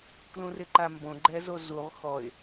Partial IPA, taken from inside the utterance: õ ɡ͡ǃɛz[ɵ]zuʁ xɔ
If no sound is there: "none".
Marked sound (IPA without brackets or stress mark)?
o